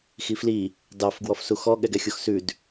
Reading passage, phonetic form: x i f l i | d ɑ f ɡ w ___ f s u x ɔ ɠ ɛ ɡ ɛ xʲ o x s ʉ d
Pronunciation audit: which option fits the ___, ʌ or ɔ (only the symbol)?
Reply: ɔ